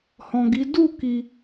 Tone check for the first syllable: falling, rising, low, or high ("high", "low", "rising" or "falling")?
low